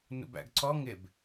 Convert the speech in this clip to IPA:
nṵbæ̰ɡǀɔ ŋɪb

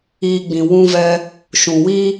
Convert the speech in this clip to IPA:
iː˧ɡ͡bĩ˨ wũ˧vɛ˧ | ʃũ˨wi˦

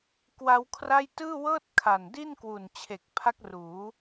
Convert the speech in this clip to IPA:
kwa˦˥wkʰra˥˩j tɯː˥˩wɤː˥˩t̚ kʰa˨˩ndi˥˩nkwu˨˩nt͡ɕʰe˨˩k̚ pʰa˦˥k̚ruː˩˦

